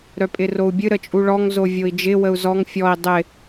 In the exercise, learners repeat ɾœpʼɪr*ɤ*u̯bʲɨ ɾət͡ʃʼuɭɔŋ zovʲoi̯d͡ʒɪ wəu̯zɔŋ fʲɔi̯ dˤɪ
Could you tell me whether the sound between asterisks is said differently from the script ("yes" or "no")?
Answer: yes